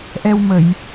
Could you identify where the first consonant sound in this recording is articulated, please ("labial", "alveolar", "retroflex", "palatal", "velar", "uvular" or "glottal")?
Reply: glottal